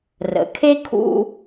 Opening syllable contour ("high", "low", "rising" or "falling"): low